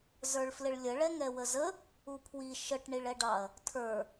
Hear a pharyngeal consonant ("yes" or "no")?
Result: no